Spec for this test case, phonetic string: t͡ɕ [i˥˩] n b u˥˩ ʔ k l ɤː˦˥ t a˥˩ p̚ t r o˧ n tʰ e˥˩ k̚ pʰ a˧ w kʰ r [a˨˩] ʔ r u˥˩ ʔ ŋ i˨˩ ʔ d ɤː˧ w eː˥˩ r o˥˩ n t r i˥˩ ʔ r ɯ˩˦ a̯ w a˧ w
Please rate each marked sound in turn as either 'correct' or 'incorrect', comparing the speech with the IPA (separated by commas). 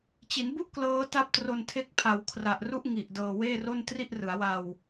incorrect, correct